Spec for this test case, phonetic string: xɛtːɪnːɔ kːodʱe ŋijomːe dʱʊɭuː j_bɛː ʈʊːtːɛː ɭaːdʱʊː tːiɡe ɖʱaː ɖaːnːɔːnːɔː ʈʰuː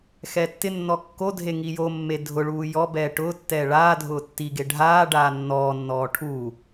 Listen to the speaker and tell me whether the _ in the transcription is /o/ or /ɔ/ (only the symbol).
ɔ